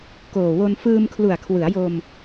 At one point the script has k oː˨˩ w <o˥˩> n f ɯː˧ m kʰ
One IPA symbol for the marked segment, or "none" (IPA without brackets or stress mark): o˧